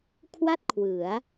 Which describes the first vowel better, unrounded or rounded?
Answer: unrounded